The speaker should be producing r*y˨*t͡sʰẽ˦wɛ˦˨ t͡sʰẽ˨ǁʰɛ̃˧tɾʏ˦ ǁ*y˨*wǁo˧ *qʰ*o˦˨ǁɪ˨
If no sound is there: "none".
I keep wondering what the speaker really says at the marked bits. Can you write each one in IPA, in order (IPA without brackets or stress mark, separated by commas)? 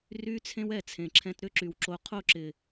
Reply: y˦, y˨, qʰ